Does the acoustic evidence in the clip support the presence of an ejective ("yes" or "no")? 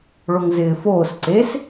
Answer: no